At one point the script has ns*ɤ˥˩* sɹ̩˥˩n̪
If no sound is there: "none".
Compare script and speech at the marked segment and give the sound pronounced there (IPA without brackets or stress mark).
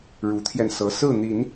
ɤ˧˥